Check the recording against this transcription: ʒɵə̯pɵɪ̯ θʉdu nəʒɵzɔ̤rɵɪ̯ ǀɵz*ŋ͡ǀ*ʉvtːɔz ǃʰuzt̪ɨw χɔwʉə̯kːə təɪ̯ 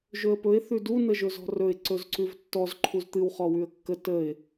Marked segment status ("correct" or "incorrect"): incorrect